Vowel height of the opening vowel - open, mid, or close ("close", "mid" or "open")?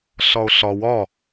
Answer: open